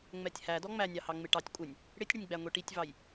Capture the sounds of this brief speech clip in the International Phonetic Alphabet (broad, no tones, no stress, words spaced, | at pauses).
ŋ͡mɛtʲhæ dɔŋ͡mænʲɑhɑ ŋ͡mɪʈɑtʲ kʷʼɪnʲ | ɽɪtʲɽɪnʲɡ͡bæ ŋʷiʈitʲvɑj